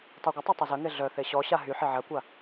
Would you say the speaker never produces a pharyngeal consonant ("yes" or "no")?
no